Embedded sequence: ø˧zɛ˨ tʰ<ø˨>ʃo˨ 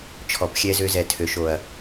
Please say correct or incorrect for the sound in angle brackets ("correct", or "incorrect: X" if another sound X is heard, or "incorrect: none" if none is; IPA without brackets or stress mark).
correct